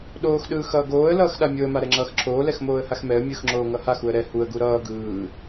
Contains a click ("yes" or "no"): yes